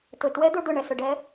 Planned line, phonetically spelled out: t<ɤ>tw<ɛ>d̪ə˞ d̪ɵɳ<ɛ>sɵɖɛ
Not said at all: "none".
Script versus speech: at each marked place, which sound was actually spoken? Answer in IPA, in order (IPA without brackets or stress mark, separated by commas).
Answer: ɵ, ɛ, ɛ